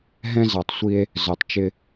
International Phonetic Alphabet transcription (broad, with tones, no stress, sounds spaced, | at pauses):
ɦ ɛ̃˥ z ɑ˨ tˤ sʷ i˦ e̯ | z œ˨ tˤ t͡ʃ ɪ˥